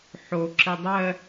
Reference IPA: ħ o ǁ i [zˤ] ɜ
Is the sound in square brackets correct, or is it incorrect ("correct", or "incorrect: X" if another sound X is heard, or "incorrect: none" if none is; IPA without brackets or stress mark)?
incorrect: dˤ